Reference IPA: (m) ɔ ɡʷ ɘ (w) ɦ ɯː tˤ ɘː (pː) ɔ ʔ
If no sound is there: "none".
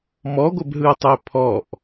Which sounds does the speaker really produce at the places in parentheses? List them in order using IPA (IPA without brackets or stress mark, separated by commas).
m, b, pʰ